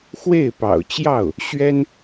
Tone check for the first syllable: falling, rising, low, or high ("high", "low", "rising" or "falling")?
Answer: falling